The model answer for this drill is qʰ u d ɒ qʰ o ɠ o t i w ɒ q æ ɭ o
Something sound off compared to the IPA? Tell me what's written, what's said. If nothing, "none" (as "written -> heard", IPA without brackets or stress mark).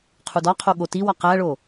none